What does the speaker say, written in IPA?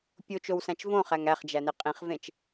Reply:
pʲ o t͡ʃ o w s æ̃ t͡ʃ v õ χ æ ŋ æ χ d͡ʒ æ n e qʼ ĩ χ v ẽ t͡ʃ

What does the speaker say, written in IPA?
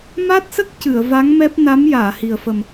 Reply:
m a˦˥ t̚ s ə˦˥ k̚ c ɨ˨˩˨ ə̯ v a˧˥ ŋ m ɛ˦˥ p̚ n a˧˥ m j aː˨˩˨ h i˨˩ ə̯ f ə˨˩ m

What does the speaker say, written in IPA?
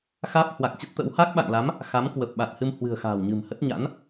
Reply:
x aː˦˥ p̚ h w a˨˩ k̚ t͡ɕ ə˦˥ t̚ t̪ ə̰˧˥ w h a˦˥ k̚ ɓ a̰˧˨ ŋ l a˨˦ m | x a˨˦ m k w ə˨˩ p̚ ɓ a˨˩ t̚ h ɨ˧ m h w ɨ̤˨˩ ə̯ x a̤ː˨˩ w ɲ ɨ̤˨˩ m h ə˦˥ t̚ ɲ a̰˧˥ n

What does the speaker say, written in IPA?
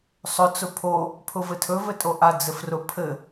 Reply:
sˤ ʊ t͡s ʊ pʰ o | pʰ ʊ v ɘ tʰ ɵ v ɘ tʼ o ʔ a d͡z ɘ f r ʊ pʰ ɘ

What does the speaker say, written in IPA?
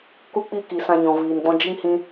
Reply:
k u˦ k͡p i˦˨ k i˨ s ã˧ ɲ ɔ̃˨ v iː˨ n ɡ͡b ɔ̃˦ d͡ʒ i˦ ŋ h ĩ˦

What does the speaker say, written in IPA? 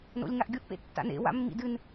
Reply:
n o̰ lʲ ŋ a ʔ ɡʲ o ʔ p ḛ tː a̰ n ḛ w a̰ mː ḭ d ɨ n

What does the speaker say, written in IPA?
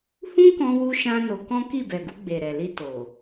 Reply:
h ũ˦ k ɔ̃˧ w u˧ ʃ ã˦ n o˧ k ɔ̃˦ k i˦˨ b ɛ˨ ɡ u˧ ɡ͡b e˨ ɾ ɛ˨ l i˧ t o˨

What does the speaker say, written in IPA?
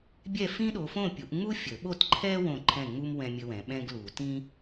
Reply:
bʲ ɛ˥˨ f ĩ˥ ɗ o˨˦ f õ˥˨ pʲ u˨˩˦ ʔ ŋ͡m u˥ fʲ ə˨˩˦ ɓ o˥˨ t ǃʰ ɛ˥ w õ˥˨ ǃʰ ɛ̃˥˨ ŋ͡m u˥ m w ɛ̃˥ mʲ ə˥ w ɛ̃˨˦ ɓ ɛ̃˥ ɡ l u˨˩˦ t ĩ˥

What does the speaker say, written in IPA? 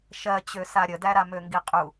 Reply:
ʃ ɜ t͡ɕ ø s a ɾʲ ə d æ ɾ a m ø ŋ ɡ i qʼ u

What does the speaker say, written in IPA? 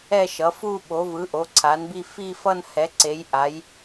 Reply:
ɛ˥˧ ʃ ʌ˩˥ f u˥˧ ɓ o˩˥ v ɯ˩˥ ʔ o˩˥ ǀʰ a˩˥ n b i˥˧ f i˥˧ f ʌ˥˧ n h ɛ˩˥ ǀ e˩˥ j ʔ a˩˥ j

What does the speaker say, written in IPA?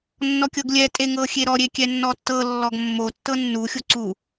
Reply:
nː ɔ kʲ ɤ ɡ lʲ ɛ tʼ e ŋ ɤ xʲ e ɾ ɔ ɾʲ e kʲ ɛ nː ɔ tː ɤ lː ɔ ɡ mː o tː ɤ nː u xʲ o ǀ u

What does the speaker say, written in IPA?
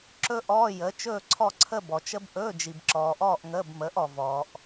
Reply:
ǁ ɵ˥ ʔ ɔː˧˥˧ j ə˨˥ t͡ʃ ɵː˥˧ ǀʰ ɔ˥˧ ǀʰ ə˥˧ b ɔ˨ t͡ʃ ə˥ b ʔ ɵː˧˥˧ d͡ʒ i˨ b ǁ ɔː˨ ʔ ɔː˥˧ ʔ ŋ əː˧˥˧ b m əː˨˥ ʔ ɔ˨ v ɔː˨ ʔ

